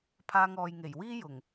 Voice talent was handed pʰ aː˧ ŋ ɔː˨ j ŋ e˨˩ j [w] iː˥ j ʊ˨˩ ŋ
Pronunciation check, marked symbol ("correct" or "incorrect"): correct